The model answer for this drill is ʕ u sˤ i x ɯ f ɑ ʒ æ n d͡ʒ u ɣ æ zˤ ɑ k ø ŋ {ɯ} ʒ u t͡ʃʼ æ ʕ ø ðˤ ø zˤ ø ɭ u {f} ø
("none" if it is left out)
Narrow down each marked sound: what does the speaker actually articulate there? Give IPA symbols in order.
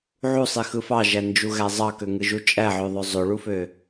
ɯ, f

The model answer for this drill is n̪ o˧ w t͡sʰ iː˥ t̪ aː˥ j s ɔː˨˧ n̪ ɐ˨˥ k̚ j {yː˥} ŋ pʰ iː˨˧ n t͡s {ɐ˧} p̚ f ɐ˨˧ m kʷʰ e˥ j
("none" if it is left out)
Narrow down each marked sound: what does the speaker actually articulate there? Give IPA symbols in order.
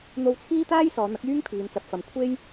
yː˥, ɐ˨

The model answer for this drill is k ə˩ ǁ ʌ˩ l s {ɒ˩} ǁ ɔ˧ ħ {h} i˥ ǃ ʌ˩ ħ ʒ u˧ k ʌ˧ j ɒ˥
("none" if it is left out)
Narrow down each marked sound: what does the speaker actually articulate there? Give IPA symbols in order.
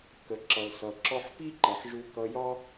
ʌ˩, p

